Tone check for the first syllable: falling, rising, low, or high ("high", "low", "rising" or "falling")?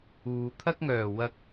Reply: low